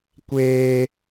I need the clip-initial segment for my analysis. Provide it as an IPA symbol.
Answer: kʷ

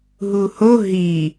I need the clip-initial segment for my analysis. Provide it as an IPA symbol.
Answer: ɦ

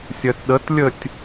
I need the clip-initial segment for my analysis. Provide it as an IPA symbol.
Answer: sʲ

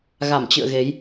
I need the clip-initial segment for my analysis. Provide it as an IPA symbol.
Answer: ɣ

